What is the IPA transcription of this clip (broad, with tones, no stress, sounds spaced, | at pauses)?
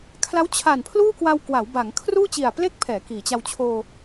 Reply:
kʰ l a˦˥ w t͡ɕʰ a˨˩ n pʰ l uː˥˩ k w a˧ w k w a˩˦ w b a˩˦ ŋ kʰ r uː˥˩ t͡ɕ i˨˩ a̯ p l e˥˩ k̚ pʰ ɛː˩˦ k iː˩˦ t͡ɕ a˧ w t͡ɕʰ oː˧